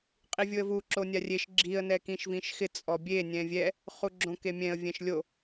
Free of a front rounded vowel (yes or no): yes